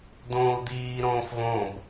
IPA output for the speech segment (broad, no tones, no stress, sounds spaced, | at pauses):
d̪ õː u̯ d̪ iː ɾ õː f v õ b